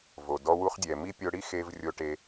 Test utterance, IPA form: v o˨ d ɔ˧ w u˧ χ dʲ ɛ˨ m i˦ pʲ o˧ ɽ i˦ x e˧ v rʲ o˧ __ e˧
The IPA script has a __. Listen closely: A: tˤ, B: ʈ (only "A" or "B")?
B